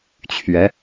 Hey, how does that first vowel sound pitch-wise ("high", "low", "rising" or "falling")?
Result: rising